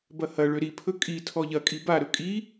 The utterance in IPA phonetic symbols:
b ɐ h ɐ ɭ ø ɾ i pʰ ɵ kʼ i tʰ ɔ ʎ ɐ kʼ i b a ɾ ɵ kʼ i

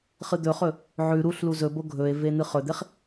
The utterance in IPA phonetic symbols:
χ ɨ d̪ ɵ χ ɵ | ʕ ʉ ɾ u ɬ l u z ɵ b o ɡʱ ɵ e̯ v e n̪ ɨ χ ɵ d̪ e χ

